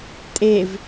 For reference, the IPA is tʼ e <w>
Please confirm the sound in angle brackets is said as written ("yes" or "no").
no